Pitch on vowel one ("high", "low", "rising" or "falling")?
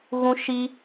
high